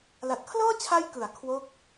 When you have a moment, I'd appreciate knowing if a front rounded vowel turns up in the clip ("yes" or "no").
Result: no